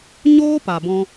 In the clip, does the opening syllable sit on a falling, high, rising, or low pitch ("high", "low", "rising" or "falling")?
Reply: high